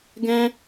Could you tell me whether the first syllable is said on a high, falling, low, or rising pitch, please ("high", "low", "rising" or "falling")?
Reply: high